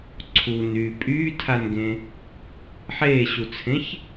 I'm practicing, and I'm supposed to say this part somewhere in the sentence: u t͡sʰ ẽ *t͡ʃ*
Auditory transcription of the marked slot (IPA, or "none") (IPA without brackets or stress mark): ç